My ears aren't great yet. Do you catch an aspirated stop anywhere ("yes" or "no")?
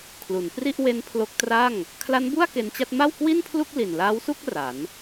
yes